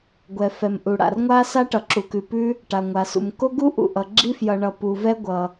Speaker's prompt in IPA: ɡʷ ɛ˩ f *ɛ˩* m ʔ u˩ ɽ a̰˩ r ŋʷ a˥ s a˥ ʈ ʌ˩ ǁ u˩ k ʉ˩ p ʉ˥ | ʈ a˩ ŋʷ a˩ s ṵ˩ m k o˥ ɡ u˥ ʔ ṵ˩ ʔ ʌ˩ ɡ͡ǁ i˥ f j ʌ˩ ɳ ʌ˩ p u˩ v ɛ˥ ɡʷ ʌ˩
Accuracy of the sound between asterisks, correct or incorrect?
correct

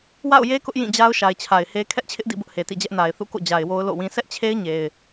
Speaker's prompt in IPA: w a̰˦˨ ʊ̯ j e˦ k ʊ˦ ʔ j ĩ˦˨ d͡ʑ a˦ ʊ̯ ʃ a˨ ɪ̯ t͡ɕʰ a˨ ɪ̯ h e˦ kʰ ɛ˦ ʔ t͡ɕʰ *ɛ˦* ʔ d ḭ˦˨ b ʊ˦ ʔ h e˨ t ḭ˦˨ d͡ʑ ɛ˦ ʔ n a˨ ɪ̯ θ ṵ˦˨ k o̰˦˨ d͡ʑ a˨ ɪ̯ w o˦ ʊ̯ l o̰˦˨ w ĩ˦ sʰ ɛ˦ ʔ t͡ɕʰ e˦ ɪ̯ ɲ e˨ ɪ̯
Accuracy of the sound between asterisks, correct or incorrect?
incorrect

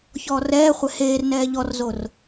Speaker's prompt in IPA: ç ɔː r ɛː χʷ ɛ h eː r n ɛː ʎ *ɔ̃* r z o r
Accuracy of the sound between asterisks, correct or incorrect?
incorrect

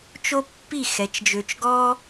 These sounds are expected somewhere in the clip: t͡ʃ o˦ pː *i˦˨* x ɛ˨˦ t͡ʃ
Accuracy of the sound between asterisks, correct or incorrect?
correct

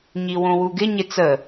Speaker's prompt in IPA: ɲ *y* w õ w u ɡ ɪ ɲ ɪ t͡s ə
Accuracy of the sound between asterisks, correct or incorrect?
incorrect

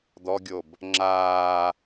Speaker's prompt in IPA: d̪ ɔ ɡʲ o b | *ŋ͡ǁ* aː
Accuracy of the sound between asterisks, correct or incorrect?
correct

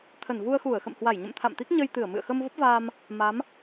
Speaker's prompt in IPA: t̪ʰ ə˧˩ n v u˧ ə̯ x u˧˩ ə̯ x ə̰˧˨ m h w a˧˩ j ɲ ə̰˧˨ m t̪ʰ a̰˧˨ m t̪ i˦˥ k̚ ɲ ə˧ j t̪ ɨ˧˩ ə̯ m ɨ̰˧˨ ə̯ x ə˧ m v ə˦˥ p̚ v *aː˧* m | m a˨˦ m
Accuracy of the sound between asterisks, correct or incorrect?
correct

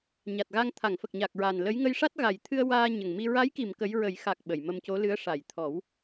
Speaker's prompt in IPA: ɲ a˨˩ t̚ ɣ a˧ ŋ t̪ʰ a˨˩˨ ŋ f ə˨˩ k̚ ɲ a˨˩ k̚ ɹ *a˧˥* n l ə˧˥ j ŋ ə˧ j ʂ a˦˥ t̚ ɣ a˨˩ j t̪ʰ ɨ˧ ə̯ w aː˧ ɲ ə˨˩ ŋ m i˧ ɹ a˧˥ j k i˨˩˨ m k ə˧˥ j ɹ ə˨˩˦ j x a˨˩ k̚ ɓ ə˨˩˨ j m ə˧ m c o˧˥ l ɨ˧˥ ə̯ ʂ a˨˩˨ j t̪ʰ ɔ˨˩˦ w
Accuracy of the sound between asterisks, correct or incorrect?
incorrect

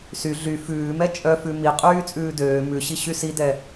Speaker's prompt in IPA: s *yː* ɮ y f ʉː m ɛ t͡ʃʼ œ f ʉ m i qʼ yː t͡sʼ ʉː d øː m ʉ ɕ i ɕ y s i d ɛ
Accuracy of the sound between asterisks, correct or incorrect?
incorrect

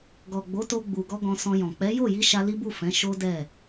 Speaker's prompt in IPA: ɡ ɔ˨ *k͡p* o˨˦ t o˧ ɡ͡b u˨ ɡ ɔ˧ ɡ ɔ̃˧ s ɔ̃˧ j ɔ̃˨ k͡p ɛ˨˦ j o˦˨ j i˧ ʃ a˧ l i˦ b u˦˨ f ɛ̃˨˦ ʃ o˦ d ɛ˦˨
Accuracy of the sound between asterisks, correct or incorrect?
incorrect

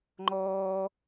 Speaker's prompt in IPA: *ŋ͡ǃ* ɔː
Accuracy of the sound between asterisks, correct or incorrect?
correct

